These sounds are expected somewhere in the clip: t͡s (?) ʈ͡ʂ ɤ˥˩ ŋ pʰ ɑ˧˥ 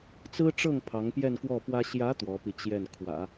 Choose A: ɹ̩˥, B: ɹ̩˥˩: A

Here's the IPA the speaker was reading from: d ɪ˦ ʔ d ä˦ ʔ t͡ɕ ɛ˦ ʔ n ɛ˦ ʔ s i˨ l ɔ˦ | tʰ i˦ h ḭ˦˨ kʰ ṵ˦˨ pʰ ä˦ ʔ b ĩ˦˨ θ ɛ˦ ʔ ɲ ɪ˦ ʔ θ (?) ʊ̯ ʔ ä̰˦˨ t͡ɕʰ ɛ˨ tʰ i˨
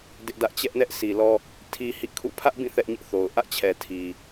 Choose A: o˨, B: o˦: A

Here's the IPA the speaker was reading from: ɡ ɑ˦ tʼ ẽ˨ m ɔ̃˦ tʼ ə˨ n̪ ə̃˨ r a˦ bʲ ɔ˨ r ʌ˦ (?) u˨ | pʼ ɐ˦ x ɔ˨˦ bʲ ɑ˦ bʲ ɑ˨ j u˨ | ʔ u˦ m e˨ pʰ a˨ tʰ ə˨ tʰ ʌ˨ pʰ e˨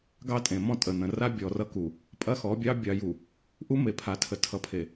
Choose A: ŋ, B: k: B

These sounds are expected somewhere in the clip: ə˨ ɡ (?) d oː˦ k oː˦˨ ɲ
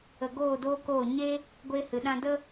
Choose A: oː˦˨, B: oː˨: A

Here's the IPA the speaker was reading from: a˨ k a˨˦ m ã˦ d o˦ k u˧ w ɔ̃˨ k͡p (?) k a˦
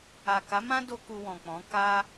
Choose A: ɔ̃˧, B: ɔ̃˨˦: B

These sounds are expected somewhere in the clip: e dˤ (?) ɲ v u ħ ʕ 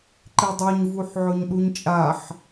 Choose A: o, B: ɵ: A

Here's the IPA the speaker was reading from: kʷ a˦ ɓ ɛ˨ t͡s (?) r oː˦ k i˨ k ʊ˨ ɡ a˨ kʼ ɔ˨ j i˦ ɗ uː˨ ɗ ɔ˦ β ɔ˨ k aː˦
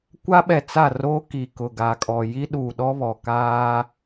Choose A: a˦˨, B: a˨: A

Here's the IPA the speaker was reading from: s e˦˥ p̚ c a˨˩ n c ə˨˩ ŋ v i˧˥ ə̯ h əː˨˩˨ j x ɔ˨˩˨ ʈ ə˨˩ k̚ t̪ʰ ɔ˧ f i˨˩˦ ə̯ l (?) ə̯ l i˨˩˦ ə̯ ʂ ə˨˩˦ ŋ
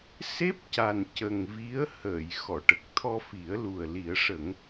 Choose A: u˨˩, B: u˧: A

